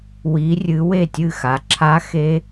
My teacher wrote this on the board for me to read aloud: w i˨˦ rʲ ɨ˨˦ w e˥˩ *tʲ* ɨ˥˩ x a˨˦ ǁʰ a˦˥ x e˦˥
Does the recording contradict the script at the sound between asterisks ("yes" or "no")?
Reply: no